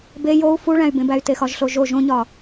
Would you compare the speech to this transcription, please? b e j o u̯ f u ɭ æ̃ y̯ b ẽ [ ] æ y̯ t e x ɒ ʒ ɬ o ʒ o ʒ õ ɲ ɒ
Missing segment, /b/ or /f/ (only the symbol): b